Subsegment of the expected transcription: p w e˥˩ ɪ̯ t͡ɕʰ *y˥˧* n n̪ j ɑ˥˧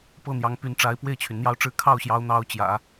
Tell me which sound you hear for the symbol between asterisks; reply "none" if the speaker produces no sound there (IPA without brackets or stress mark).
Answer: y˩